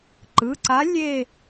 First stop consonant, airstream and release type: click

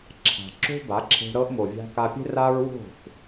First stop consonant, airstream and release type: click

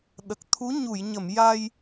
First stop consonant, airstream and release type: implosive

